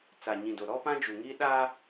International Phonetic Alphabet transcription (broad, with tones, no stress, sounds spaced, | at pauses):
t͡s a˨ ɲ ĩ˨ d o˨ ɾ ɔ˦ p ã˦ d͡ʒ u˨ ŋ iː˦ ɗ aː˦